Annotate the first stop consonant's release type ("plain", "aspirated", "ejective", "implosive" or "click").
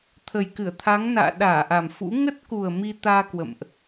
aspirated